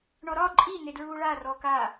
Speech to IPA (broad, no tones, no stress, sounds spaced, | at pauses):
ɳ ɔ ɾ ɒ ǃʼ i n e d ɹ uː ɭ a r ɔ k a